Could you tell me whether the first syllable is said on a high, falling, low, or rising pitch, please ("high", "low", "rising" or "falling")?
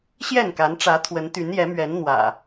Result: falling